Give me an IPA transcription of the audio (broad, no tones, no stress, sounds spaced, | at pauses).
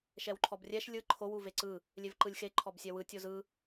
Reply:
ʃ ɛ w ǃʰ ɔ b rʲ ɛ ʃ lʲ ɯ ǃʰ o w u v e ǀ ɯ | lʲ e v ǃ ɯ lʲ x e ǃʰ ɔ b sʲ ɛ w ɯ tʲ o z ɯ